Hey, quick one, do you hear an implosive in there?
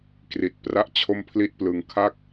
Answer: no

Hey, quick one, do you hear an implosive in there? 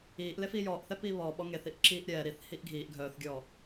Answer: yes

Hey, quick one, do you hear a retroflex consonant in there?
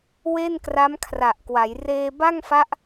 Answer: no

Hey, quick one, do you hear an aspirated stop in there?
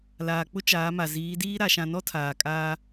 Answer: yes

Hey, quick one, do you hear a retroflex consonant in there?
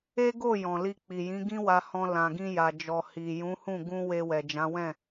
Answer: no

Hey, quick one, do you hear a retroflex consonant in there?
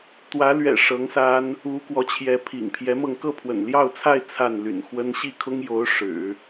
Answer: yes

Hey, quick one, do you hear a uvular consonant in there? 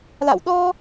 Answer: no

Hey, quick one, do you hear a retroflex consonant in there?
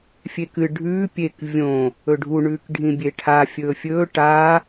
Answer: yes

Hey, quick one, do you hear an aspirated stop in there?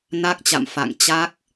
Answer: no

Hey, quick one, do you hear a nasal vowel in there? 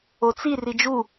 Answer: no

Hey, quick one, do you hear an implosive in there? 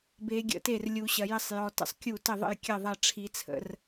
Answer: no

